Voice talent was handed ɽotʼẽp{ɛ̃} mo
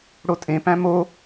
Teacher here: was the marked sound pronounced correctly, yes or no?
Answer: no